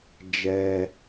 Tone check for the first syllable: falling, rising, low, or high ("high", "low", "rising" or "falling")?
high